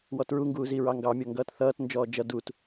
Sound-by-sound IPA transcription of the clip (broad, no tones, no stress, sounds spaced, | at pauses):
w ɔ t ɹ u ŋ ɡ uː z i ɹ ɑ ŋ ɡ ɑ mʲ ɔ ŋ ɡ ʌː t θ ʌː t n d͡ʒ ɔː d͡ʒ ʌ d u t